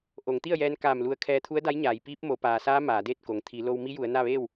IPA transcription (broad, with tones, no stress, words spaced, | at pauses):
ʔo˩˧ŋt̪i˥˨ə̯jɛː˧n kaː˧˩m lu˧ə̯ kʰɛː˧t̪ʰu˧˥ə̯da˧˥jɲaː˩˧j piː˧˥p̚mo˩˧paː˩saː˧˥ maː˩˧deː˥˨t̚ko˩ŋ t̪ʰi˩˧lo˧w mi˧˥ju˩˧ə̯ na˥˨ʋeː˥˨w